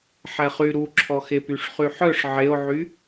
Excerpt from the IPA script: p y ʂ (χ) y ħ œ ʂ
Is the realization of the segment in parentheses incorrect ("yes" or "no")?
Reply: no